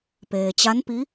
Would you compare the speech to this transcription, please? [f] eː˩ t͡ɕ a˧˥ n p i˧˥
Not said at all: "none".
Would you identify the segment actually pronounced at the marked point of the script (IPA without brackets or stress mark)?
p